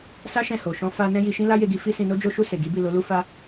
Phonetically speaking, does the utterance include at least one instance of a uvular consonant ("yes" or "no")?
no